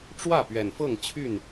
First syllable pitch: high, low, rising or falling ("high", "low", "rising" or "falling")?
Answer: falling